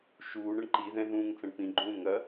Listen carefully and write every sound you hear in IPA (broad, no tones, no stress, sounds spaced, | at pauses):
ʃ uː ɳ ɐ ɳ ǃ i ð ɛ̃ ð ũː ŋ t͡s ɐ̃ ɳ p ĩ ɡ͡ǃ ũː ŋ ɐ